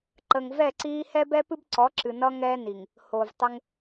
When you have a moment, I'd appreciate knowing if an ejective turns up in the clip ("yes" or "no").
no